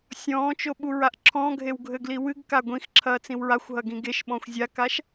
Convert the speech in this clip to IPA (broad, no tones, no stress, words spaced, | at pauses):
sʲɔ̃ːt͡ʃoɓuɹaʔ ǁʰɔ̃ɡʱewɡʱɘɡli wɨɡka ɡʷĩxǁʰɐːt͡sĩw ɹaxʷɦɐɡĩ ɡeʃɓɔ̃xʷ zʲakaʃ